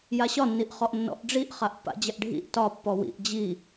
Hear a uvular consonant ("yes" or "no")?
yes